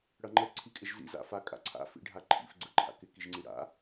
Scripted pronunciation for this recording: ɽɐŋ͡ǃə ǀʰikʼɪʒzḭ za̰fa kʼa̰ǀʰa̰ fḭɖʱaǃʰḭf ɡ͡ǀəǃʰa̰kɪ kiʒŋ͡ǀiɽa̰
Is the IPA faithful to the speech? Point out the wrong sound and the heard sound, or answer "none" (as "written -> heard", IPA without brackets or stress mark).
none